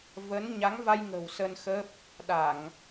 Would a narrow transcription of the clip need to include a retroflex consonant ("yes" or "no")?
no